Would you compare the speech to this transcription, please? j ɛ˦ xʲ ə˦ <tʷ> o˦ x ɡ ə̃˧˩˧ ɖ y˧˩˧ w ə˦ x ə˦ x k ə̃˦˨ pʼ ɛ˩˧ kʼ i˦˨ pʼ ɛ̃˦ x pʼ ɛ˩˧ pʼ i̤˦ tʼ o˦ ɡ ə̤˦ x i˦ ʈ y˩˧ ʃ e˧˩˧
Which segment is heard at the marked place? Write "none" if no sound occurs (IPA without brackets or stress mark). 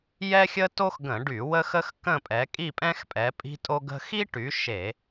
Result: t